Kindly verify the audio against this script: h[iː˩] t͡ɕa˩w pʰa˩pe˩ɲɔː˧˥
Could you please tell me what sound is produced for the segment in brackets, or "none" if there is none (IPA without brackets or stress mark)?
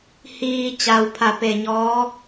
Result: iː˩